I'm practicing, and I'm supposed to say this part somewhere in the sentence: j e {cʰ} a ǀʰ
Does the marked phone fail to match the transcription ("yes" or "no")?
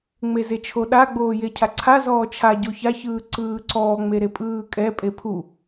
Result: no